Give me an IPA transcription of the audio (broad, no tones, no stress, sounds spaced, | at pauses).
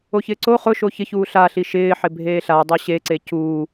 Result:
o ç ɪː ǀ o χ ʊ ʃ o ç ɪ ç uː ɬ a ɬ i ʃ ɪː ħ ɪ bʱ eː ɬ a dˤ o ɕ e ǀ e c uː